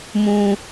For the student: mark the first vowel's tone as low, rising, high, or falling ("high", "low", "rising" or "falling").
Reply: low